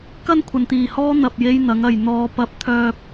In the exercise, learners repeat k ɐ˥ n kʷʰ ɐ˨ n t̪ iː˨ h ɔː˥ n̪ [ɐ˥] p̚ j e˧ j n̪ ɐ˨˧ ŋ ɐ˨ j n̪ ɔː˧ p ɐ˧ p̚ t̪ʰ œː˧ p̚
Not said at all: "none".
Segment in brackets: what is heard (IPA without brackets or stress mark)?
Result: ɐ˨